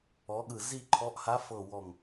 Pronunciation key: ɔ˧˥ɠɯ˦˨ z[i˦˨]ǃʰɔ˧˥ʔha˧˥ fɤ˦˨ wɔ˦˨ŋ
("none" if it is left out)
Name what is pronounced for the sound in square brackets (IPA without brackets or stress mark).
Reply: i˦˨